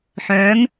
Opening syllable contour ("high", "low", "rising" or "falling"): rising